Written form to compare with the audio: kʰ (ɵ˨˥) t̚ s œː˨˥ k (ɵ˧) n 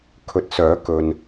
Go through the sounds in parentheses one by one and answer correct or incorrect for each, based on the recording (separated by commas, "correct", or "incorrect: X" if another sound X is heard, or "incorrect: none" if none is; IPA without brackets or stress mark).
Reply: correct, correct